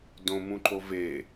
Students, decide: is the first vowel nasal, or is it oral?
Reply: nasal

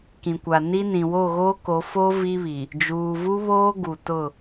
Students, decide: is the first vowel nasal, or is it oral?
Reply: nasal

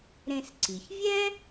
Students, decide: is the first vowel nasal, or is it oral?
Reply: nasal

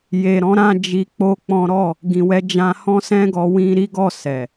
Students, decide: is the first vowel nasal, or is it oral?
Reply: oral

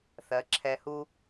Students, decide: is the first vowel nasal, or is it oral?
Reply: oral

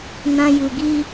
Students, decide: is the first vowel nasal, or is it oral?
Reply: nasal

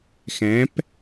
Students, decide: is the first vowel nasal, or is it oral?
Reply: nasal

